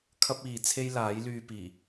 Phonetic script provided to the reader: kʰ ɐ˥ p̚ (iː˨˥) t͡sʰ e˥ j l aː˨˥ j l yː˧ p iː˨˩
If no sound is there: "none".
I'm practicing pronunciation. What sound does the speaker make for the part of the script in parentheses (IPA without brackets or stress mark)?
iː˨